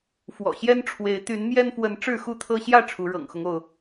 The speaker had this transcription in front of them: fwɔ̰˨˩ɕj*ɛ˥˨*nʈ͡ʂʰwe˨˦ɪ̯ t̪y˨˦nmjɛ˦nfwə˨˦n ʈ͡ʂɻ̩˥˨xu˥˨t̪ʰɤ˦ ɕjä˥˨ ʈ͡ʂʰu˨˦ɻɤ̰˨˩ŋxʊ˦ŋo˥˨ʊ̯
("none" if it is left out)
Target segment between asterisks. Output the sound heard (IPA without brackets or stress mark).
ɛ˦